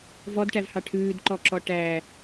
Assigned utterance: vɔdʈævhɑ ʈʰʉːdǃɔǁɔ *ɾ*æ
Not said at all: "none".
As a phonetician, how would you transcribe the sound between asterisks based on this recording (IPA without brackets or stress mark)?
ʈ